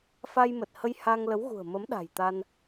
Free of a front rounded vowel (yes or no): yes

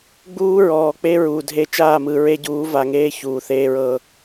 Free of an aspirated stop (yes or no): yes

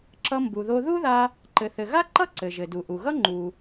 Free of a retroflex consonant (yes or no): yes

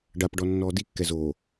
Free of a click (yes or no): yes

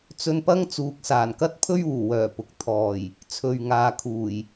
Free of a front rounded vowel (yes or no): no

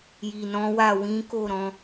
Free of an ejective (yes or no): yes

